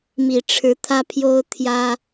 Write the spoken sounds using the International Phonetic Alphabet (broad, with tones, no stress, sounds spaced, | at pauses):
m i˨˩ ʈ͡ʂʰ ɻ̩˨˦ t̪ʰ ä˦ pʰ j o˦ ʊ̯ t̪ʰ j ä˦